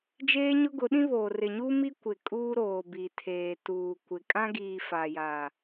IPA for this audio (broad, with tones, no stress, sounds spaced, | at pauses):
d͡ʒ eː˦ ɲ ʊ˦ ɡ ʊ˨˦ ɗ ĩ˦ β oː˨ r ɪ˨ ɲ u˦ m i˦ kʷ ɪ˨ kʼ uː˦ ɾ oː˨ b i˨ tʰ eː˨ t uː˨ kʷ ɪ˨ kʼ ã˦ ɡ iː˨ f a˨ j a˨